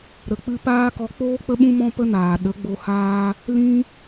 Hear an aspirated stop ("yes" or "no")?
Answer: no